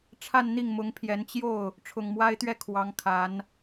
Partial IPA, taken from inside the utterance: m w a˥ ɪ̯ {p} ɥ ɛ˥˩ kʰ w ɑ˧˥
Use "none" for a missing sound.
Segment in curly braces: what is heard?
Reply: t̪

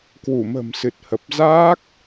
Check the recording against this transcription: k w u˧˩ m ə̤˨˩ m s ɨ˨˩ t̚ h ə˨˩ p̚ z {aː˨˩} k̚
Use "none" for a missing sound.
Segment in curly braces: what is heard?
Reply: aː˦˥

